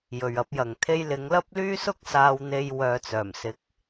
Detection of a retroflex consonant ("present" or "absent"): absent